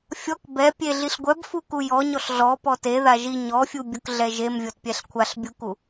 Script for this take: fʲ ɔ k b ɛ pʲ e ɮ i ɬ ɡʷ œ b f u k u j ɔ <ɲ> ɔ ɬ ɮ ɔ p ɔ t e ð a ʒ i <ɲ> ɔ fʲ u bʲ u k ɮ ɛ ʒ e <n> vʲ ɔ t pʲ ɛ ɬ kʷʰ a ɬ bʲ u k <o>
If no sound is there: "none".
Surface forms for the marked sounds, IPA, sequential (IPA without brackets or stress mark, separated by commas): ɲ, ɲ, m, u